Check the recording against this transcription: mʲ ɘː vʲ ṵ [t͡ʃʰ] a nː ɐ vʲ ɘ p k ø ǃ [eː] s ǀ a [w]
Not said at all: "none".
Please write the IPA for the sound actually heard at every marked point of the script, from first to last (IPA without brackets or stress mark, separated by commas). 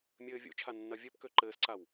t͡ʃʰ, ɘː, w